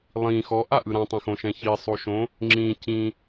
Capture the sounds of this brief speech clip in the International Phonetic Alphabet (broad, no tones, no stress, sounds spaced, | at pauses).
lˠ ĩ x ɔ ʔ a ʔ ɯ ɾ ã tˤ ɛ̃ x õ ʃ ɛ̃ ç i sˤ o ʃ õ | ŋ͡ǁ ĩ c ĩ